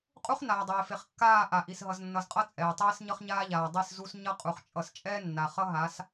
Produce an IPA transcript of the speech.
qʼ u˦ χ n aː˨ dˤ eː˨ f e˨ χ kː aː˦˨ ʔ a˨ ʔ i˨ s ɦ ʌ˨ z nː ʌ˨ z qʼ ʌ˦ t͡sʼ ɛː˨ tˤ eː˦ s ɲ ʌ˦ χ ɲ aː˦ ʎ aː˨ dˤ i˦˨ s z u˦ s ɲ ʌ˦ qʼ u˨ χ t͡ʃʼ ʌ˨ s t͡ʃʼ ɛː˦ nː a˨ χ ʌ˦ ɦ a˨˦ s

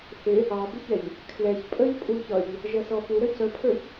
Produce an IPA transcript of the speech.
θ ɪ | ɑ b ə ç ɛ ʎ | kʰ l ɛ ç pʼ ə ʎ pʼ u ç ʌ ʎ | ʒ ʌ s ɔ f u ɾ ə c ə pʰ ə˞ ç

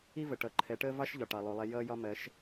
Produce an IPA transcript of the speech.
i˦ v ə˨ ʈ ʌ˨˦ ǃʰ ɛ˨˦ ʈ əː˦ v ɑ˦ ʃ ʎ ɒ˨ ʈ ɑ˨ lˠ u˨ lˠ ɛ˦ j ʌː˦ j ɒ˦ m ɜ˨˦ ʃ

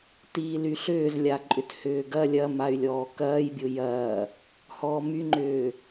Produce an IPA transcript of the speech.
t iː l y ɬ ʏː z lʲ a ǃʼ ʏ t h ʏː ɡ ɐ lʲ ɐ m a y̯ lʲ ɔː k ɐː j bʲ ʊ j ɐː | h ɔː m y ŋ͡ǃ ʏː

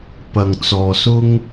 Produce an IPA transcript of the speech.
p ɐ˨ ŋ t͡s ɔː˨ s ʊ˧ ŋ

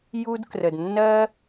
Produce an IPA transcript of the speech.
j u˥ d k r ə˧ d nː ɜ˥

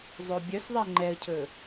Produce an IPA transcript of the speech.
zˤ œ bʲ œ s ðˤ æ ŋ͡ǃ ɛ ə̯ cʰ ɵ

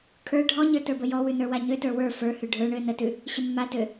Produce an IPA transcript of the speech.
kʰ ə˞ ɖʱ ɔ ɲ ə˞ t ə˞ b ə j ɔ w ʉ n ə˞ w a ɲ ø t ə˞ w ə˞ f ə˞ h ʉ ɖʱ ə˞ ɳ ø n ə t ʉ | ɕ ə mː a t ø

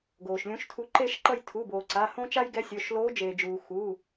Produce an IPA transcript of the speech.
ɡ oː˩ ʃ lʲ ũ˨˥ ʃ tʰ u˨˥ ǃ e˦˨ ʃ ǃ ʌ˦˨ j tʰ u˩˧˩ b oː˩ ǀ a˩˧˩ h õ˦ t͡ʃ a˦ j ɡ ɛ˨˥ sʲ o˩˧˩ ʃ l oː˨˥ d͡ʒ eː˩ d͡ʒ uː˩ x u˩˧˩

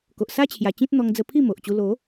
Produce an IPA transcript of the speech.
k o˨ ʔ s a˦ t͡ɕʰ j a˨˩ t͡ɕ ĩ˦ t̚ n̪ ɔ˧ ŋ d͡z ə˧ pʰ i˥˧ m o˨ ʔ t͡ɕ u˧ l o˨˦

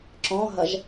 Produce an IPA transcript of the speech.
ǁ ɔ̃ ɦ ɐ ʒ

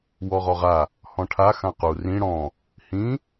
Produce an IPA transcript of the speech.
w ɔ ʁ ɔ ʁ a | h ɔ̃ ʈʰ a x ã q u r ĩ ɽ ɔ̃ | h ĩ

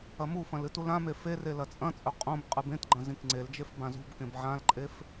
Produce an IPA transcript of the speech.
ɐ m u f ɐ̃ l ɨ t u l ã m e f e r e l ɐ t͡sʼ ɐ̃ t͡sʼ ɵ qʼ õ b qʼ ɨ b ẽ t ɡ͡ǃ ɐ̃ z ĩ k ŋ͡ǀ e l d͡ʒ e f b ã z ṳ b k ẽ b ʕ ã l ǃʼ e f

